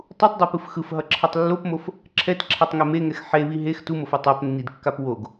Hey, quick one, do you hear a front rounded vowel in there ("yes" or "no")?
no